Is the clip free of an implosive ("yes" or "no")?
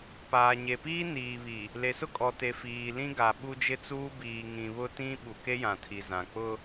no